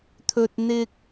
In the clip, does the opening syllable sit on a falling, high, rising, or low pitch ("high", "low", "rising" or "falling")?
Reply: high